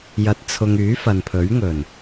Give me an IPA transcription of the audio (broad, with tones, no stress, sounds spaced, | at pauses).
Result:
j ɐ˧ t̚ t͡sʰ ʊ˧ ŋ yː˨˥ f ɐ˨ n pʰ ɵ˨˥ ɥ ŋ ɵ˨˩ n